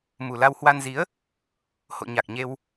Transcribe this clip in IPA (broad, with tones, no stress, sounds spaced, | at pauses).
m u˨˩ l a˧ w h w a˧ n z i˨˦ ə̯ | h o̰˧˨ ɲ a˨˩ k̚ ɲ e˧ w